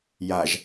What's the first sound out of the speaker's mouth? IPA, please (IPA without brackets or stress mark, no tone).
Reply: j